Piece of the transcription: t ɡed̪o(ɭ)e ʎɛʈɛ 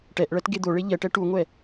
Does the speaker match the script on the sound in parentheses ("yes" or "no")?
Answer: yes